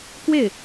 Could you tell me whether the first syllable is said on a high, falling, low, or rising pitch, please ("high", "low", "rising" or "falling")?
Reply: falling